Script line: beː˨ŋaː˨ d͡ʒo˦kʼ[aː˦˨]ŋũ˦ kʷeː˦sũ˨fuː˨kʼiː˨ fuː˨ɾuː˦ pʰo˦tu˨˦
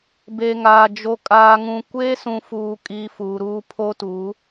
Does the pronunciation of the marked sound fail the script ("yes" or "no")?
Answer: yes